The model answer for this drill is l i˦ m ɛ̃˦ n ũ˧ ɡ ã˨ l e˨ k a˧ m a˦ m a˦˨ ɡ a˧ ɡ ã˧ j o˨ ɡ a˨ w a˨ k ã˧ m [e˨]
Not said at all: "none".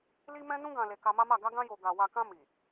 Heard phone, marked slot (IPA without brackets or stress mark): i˨